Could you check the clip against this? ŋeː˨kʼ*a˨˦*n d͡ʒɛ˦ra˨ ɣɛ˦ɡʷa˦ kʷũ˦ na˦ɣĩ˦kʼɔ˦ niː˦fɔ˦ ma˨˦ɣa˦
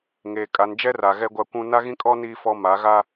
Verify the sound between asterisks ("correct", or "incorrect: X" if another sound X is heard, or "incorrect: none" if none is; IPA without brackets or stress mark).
correct